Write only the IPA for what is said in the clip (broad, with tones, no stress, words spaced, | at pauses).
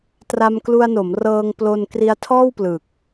tra˧mklu˧a̯no˩˦m rɤː˧ŋplo˧n kri˧a̯tʰɔː˥˩wplɯ˨˩k̚